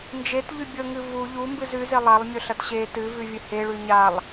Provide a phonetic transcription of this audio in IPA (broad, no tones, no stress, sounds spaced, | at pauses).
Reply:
n d͡ʒ e t ʎ ʉ bʲ ɵ ŋ ɨ v u ʎ u m b ɨ z ʉ z e lˠ a lˠ mʲ ɵ ɬ ɐ t ɕ e t ɨ v ʉ vʲ ɨ h e ɭ ʉ ɲ a lˠ